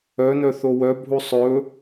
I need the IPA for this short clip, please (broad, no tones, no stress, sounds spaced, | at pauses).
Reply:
œ n œ θ o w œ bʱ u sˤ ɵ